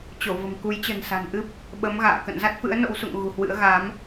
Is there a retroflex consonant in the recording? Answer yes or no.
no